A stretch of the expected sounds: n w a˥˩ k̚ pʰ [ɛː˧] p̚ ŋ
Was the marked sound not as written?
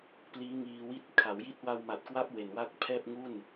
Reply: yes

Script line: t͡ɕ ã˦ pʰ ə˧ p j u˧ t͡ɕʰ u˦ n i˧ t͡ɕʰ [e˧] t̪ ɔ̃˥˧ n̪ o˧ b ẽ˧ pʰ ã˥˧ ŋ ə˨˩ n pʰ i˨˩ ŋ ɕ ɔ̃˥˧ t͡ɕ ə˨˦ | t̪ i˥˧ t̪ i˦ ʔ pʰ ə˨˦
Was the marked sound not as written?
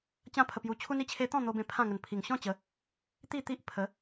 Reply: yes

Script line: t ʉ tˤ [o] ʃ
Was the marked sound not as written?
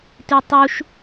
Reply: yes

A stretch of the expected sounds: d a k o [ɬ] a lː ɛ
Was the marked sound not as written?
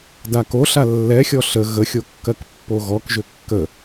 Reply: no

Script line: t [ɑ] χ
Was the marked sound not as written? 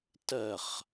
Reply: yes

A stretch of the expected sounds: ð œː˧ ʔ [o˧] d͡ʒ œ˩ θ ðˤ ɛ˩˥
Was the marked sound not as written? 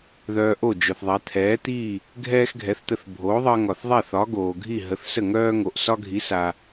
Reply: yes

